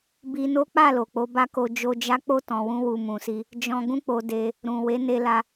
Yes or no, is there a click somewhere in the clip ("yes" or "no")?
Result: no